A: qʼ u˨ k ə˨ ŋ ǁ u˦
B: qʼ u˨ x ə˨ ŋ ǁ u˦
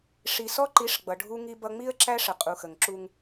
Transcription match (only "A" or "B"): B